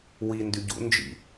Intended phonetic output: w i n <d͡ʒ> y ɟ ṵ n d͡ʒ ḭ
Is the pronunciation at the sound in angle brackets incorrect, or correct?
incorrect